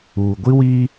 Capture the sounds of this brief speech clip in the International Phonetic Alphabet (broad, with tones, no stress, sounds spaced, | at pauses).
uː˨ ɡʷ i˦ w iː˦